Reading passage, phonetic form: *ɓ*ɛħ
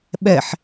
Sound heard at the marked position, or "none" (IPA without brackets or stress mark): ɓ